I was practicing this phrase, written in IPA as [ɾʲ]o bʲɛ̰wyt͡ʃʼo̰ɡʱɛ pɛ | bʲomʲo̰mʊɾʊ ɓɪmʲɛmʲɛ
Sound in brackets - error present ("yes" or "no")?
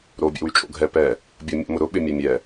yes